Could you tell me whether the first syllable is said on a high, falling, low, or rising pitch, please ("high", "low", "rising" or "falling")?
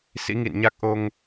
rising